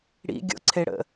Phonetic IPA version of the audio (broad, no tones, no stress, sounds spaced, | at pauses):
ɽ ḭ ɡʲ o̰ ǀʰ e ɽ ə̰